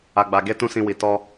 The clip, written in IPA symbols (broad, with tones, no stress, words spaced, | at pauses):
a˧ɡ͡ba˧ ɡe˦ tũ˦sĩ˧wi˨ tɔ˧